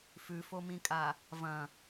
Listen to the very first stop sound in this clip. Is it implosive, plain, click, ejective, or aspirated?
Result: ejective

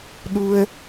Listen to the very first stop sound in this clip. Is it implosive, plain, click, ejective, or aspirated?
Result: implosive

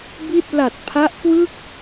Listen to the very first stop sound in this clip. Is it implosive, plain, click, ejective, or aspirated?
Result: plain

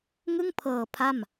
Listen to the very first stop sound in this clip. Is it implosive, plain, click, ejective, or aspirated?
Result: aspirated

